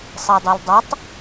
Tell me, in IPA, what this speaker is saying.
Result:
sˤ e dˤ ɯ l dˤ o tˤ

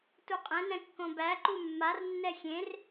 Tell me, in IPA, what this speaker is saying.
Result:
t u qʼ ɛ̃ n ɛ̃ kː õ b æ ǃ u mː a r nː ɛ xʲ ẽ r

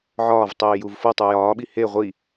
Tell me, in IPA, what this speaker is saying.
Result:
ʕ ɒː v tˤ iː j u v f o tˤ u j ɒː ɓ i h e ʁʷ i

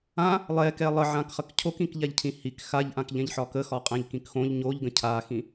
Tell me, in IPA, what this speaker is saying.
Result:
ã | lˠ ɛ k ɛ lˠ ə ʕ ã k χ ə k cʰ o k ĩ k ʎ a ʎ cʰ ĩ h i k x a ʎ ʔ ã k ʎ ɛ̃ ʎ ħ ɒ k ə x ɒ qʼ ɛ̃ ʎ k ĩ k x õ ʎ ɲ o ʎ ɡ ə̃ cʰ a x ĩ

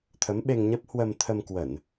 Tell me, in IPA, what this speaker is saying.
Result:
t̪ʰ ə˨˦ m ɓ e˧ ŋ ɲ ə˦˥ p̚ h w ə˧ m t̪ʰ ə˧ m k w ə˧˩˨ n

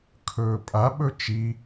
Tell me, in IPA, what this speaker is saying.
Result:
kʰ ɵː pʼ a ɓ ɵ t͡ʃ i

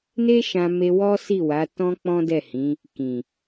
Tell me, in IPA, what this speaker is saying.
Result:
n e˦ ʃ ã˧ m e˧ w ɔ˦ s i˦˨ w a˨˦ t ɔ̃˦ k͡p ɔ̃˦ d ɛ˦˨ h ĩ˨˦ | k ĩ˨

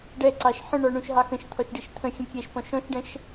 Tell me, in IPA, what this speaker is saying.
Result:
ɖ ɛ ǀ ɑ ʃ ħ ə̃ ɳ ɔ ɳ ũ ʃ ɦ ɑ x ə̃ ʃ t̪ʰ ɔ ʃ ɖ i ʃ t̪ʰ ə̃ xʲ ə̃ kʲ ɛ ʃ p ɔ̃ ʃ ɔ̃ ʃ ɖ ə̃ ʃ

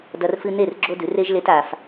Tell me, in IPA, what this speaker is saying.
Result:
d ɐ˧ r f ɨ˧ n e˦˨ r ɡ͡ǁ o˦ d ʉ˨˦ r e˦ ʒ l e˦ t a˧ f

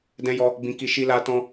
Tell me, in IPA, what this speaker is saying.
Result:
d ɛ̃˦ j ɔ˦ | b ĩ˦ k i˦ ʃ i˦ l a˦ t ɔ̃˦

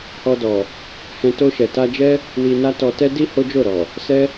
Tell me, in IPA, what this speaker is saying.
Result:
h ɔ˧ d ɔ˨ | h ɛ̃˧ t o˧ ʃ ɛ˨ t a˧ d͡ʒ ɛ˦ | w i˧ n a˦ t ɔ˧ t ɛ˦ d i˦ h o˦ d͡ʒ o˦˨ ɾ ɔ˨ | s ɛ˦

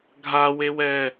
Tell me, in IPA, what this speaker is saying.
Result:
ɡʱ a w e w ɛ

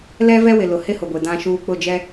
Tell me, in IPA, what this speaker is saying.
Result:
l ɛ˦ v ɛ˦ w ɪ˨ l ʊ˨ h ɪ˦ h ʊ˨ ɡʷ e˨ d ã˦ ʃ uː˦ k͡p ʊ˦˨ d͡ʒ ɛ˦

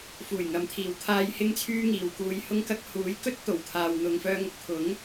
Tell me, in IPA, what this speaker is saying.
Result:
f uː˨˩ j ŋ ɐ˨˧ m t̪ʰ iː˨ w t̪ʰ aː˧ j h ɪ˥ ŋ t͡sʰ yː˥ ŋ iː˨ w k uː˨ j h ʊ˧ ŋ k ɐ˧ k̚ h uː˨˥ j k ɵ˥ t̚ t̪ o˨˩ w t̪ʰ aː˨ w n̪ ʊ˨ ŋ f œː˧ ŋ ʊ˨ k̚ t̪ʰ ʊ˨˥ ŋ

